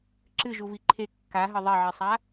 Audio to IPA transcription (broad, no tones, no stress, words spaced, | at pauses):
ǁɨʒuvi ǃʰe kːaɦɘ ðˤɛʕisˤa